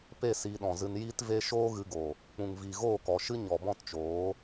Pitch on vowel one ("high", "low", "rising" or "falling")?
falling